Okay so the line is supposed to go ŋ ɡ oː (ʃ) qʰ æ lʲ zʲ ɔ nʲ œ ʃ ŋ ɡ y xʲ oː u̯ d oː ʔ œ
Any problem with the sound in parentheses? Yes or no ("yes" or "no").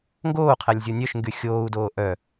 yes